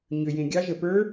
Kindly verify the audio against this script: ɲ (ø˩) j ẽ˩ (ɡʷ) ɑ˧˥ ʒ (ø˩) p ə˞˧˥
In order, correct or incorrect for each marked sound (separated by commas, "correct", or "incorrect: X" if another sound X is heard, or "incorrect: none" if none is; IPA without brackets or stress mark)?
correct, incorrect: ɡʲ, incorrect: ə˩